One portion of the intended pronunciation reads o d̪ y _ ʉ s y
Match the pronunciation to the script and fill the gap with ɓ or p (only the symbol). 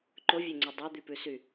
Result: p